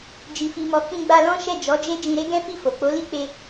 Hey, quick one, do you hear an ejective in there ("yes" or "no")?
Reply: no